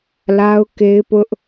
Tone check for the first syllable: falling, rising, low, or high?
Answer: high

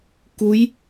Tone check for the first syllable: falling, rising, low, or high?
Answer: rising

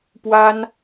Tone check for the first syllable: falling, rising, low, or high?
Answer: high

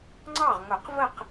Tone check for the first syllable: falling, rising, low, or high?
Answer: falling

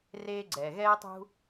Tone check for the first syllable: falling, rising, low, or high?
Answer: high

